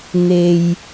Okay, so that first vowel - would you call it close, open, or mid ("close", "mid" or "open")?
mid